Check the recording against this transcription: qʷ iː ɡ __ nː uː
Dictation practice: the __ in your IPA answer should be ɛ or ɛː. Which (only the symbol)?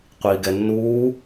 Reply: ɛ